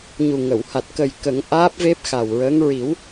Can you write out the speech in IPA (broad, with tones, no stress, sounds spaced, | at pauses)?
ɲ u˨˩ ŋ ə˨˩˨ w h a˨˩ t̚ k ə˨˩ j k ə˨˩˦ ŋ ʔ aː˦˥ p̚ v e˦˥ p̚ x a˨˩ w ɹ əː˧˥ ŋ ɹ i˨˩˦ w